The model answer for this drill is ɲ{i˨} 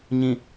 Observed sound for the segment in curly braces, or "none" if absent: ĩ˨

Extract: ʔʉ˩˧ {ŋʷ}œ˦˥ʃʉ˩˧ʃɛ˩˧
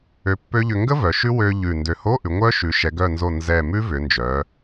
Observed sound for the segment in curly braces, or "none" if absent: ŋʷ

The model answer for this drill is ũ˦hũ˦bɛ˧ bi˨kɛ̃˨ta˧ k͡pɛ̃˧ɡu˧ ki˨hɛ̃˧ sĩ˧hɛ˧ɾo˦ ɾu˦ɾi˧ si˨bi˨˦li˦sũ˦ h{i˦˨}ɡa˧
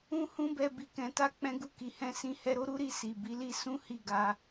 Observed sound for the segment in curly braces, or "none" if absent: i˦˨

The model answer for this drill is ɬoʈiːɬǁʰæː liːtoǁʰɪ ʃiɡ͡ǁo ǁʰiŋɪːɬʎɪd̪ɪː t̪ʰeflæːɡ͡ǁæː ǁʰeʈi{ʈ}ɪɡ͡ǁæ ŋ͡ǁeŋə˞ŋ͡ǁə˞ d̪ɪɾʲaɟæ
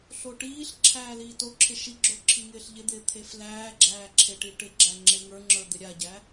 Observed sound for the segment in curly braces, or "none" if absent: ʈ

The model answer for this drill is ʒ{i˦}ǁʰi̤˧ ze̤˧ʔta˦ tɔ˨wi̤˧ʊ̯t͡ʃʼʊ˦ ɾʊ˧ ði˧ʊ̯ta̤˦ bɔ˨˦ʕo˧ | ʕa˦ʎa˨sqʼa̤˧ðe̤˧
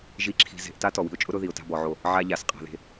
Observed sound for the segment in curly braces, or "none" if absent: i˦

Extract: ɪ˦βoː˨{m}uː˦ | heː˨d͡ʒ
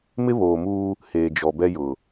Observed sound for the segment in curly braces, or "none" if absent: m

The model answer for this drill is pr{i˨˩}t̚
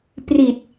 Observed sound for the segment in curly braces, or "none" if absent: i˨˩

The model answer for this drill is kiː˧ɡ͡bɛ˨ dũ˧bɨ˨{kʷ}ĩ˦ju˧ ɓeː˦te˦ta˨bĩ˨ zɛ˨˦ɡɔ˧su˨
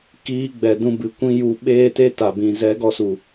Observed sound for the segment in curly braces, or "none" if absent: kʷ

